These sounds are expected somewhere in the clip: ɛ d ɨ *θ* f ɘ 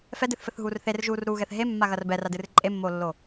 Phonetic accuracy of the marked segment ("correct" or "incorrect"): correct